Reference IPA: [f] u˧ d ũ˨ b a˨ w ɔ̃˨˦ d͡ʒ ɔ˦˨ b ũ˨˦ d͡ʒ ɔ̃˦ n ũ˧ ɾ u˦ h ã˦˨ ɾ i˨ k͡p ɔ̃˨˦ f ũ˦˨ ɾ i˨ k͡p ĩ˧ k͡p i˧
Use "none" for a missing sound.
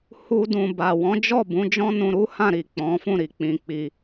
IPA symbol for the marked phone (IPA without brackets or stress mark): h